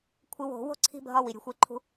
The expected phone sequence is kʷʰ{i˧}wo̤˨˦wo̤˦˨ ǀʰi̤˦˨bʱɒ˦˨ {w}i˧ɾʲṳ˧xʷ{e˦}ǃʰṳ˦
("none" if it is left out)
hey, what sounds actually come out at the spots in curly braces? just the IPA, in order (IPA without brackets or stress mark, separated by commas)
i˧, w, e˦